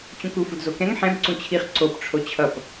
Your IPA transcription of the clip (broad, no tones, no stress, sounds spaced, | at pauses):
t͡ɕ ũ k u f u d z o k ɛ̃ ŋ ħ ɛ̃ b ǀ ũ t͡ɕʰ i χ ǀ o p ʈ͡ʂʰ o t͡ɕʰ ʌ p